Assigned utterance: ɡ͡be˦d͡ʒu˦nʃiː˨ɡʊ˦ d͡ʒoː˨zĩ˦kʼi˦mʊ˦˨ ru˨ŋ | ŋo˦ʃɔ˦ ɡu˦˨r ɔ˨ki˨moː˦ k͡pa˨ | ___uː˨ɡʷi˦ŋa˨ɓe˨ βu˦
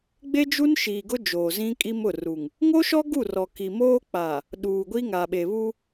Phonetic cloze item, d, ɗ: ɗ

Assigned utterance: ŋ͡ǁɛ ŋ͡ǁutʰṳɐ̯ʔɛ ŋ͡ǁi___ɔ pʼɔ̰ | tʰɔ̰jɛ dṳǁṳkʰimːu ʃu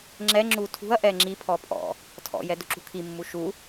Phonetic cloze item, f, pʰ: pʰ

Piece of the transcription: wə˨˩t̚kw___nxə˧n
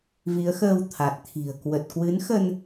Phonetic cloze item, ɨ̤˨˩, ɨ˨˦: ɨ˨˦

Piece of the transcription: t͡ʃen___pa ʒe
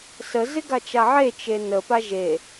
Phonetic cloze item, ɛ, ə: ə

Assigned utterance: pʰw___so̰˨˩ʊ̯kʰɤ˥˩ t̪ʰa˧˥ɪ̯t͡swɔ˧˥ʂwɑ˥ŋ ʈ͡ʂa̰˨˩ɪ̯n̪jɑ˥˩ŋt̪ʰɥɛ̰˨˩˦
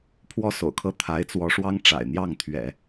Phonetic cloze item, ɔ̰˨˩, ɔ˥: ɔ˥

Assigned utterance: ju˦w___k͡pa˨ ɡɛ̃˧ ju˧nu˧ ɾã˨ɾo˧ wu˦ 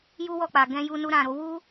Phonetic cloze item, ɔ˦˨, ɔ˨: ɔ˦˨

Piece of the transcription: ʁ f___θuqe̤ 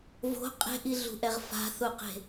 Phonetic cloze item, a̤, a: a̤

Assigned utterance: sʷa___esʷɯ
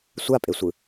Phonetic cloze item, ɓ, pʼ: pʼ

